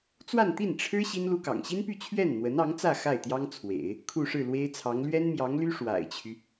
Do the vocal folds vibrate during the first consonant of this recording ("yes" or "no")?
no